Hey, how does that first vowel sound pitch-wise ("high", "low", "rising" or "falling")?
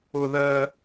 high